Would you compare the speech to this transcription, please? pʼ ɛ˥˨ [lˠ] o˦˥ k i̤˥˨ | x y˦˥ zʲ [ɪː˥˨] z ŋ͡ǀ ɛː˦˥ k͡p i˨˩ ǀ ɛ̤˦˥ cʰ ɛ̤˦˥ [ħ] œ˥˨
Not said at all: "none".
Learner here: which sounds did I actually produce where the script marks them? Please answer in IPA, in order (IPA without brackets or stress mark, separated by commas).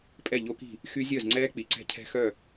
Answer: ʎ, əː˥˨, x